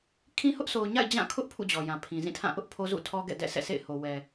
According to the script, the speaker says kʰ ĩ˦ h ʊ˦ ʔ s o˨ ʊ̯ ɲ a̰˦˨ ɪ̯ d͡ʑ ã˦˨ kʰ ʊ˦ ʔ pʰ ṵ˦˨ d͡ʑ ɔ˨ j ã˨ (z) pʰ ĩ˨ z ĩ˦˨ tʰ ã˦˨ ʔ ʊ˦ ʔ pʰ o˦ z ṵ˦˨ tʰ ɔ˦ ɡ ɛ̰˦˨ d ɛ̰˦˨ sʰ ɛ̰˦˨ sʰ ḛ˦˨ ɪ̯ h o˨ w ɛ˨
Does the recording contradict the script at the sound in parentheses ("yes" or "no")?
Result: yes